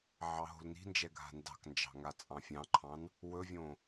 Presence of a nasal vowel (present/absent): present